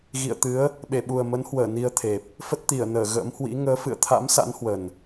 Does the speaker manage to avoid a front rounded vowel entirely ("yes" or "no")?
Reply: yes